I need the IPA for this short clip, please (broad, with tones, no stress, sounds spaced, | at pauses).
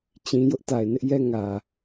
t͡ɕ ĩ˦ j ʊ˦ ʔ t a˨ ɪ̯ n ɪ˦ ʔ j ɛ˦ ŋ ä˨